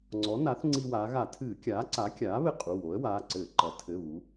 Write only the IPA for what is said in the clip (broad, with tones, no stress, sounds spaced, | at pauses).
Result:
ŋ͡ǀ ɔ˩˥ n a˩˥ θ ŋ͡ǀ i˧ w aː˩˧ ɣ a˧˩˧ tʰ ɨː˧˩˧ kʲ aː˩˥ ǀ a˩˥ kʲ aː˩˥ β ɘ˧ qʼ u˩˧˩ w o˩˥ ə̯ w aː˩˧˩ ǀ ɘː˧˩˧ ǃ ɐ˩˧ tʰ ɘ˩˧˩ β u˩˧